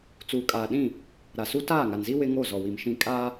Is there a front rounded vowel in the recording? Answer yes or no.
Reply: no